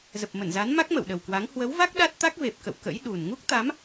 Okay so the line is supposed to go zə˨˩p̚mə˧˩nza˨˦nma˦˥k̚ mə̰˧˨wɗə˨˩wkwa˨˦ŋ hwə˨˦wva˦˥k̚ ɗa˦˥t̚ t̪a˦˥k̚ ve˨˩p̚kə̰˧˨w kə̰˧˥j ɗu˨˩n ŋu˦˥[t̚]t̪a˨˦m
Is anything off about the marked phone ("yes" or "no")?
yes